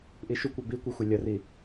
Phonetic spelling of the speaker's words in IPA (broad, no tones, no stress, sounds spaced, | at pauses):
ʔ i ʃ u kʷ a b i kʷ ɯ xʷ a lʲ ʌ r i